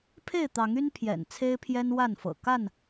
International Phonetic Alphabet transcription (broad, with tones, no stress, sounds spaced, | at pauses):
pʰ e˥˨ ɪ̯ t̪ ɑ˨˦ ŋ y˦ n pʰ j ɛ̰˨˩ n t͡sʰ e˦ ɪ̯ pʰ j ɛ˦ n w a˥˨ n f ɤ̰˨˩ k a˥˨ n